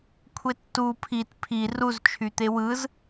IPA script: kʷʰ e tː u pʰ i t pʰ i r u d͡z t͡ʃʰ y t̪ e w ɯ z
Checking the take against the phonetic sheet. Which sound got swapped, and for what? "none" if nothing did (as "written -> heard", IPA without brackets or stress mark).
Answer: d͡z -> z